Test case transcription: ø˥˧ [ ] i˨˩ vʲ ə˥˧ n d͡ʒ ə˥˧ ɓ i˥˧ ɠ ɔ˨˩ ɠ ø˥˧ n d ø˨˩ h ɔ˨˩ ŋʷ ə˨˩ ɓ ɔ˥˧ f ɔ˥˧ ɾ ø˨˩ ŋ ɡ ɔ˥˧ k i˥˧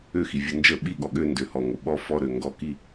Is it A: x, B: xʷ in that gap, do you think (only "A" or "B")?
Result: A